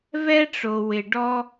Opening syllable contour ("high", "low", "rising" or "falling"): high